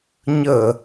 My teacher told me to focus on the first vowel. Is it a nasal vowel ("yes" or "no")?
no